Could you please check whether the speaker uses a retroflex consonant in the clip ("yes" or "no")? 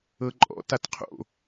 no